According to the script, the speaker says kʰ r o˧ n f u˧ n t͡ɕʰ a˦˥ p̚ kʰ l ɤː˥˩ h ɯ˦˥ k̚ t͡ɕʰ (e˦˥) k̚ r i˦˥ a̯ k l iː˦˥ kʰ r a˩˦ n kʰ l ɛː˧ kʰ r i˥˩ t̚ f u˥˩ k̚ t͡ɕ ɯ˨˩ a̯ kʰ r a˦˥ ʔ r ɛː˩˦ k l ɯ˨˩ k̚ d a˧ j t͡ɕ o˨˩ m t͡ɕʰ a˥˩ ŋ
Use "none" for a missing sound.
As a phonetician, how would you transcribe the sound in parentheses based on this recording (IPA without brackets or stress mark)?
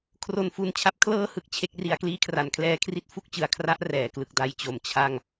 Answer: e˦˥